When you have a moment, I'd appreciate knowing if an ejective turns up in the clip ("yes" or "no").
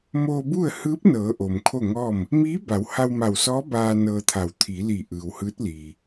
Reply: no